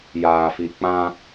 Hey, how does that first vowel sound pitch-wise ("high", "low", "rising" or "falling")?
low